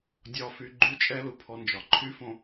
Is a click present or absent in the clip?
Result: present